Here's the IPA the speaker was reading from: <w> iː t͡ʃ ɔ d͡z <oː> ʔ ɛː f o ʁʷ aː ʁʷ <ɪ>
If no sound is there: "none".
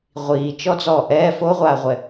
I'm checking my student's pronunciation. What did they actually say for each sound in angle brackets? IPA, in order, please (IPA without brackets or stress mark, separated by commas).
ʁʷ, ɔː, ɛ